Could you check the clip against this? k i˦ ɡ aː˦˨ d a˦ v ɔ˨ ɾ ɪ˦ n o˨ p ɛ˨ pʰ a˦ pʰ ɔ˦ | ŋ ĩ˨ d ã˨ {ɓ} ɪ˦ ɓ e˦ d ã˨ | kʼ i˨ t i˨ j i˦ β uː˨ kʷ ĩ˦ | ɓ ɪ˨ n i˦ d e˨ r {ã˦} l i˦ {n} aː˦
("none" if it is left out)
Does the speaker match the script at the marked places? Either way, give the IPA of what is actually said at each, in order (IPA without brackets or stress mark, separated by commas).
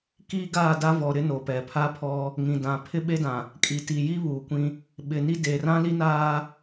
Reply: pʰ, ã˦, n